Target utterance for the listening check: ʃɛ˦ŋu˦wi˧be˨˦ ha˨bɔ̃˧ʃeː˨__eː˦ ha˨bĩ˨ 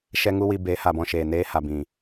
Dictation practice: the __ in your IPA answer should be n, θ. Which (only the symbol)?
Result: n